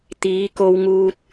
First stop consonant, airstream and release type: plain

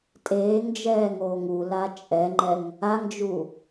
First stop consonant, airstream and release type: ejective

